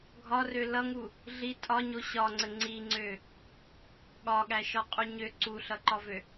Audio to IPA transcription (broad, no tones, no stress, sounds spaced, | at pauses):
ɡʱ ɒ r ø l ʌ ŋ u | ɮ i tʼ ɒ ɲ o ɕ ɒ ŋ͡ǀ ə ŋ͡ǀ i ŋ͡ǀ ø | ɠ ɒ ɠ æ ʃ ɒ qʼ u ɲ ø ǀ u ɬ ʌ ǃ ɒ v ø